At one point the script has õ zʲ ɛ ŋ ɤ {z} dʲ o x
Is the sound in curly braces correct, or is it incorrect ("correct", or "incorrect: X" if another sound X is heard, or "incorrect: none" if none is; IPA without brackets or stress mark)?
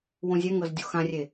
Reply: correct